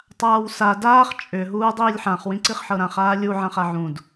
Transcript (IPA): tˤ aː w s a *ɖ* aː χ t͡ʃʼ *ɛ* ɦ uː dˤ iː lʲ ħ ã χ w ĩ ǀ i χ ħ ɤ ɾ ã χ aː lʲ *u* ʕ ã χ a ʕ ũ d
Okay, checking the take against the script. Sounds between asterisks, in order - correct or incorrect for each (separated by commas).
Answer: incorrect, incorrect, correct